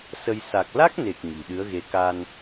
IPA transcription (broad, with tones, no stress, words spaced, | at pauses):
sə˧j sa˨˩k̚la˦˥k̚ne˨˩k̚ ɲi̤˨˩ ɗɨ˨˦ə̯ɣe˨˦ ka˧n